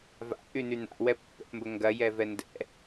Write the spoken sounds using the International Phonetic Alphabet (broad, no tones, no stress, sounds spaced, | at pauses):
v a̰ ʔ y n y n̪ a̰ w ɛ pː ɛ̰ p m b ə ŋ ɡ ɐ j ɛ v ɛ n d ɛ̰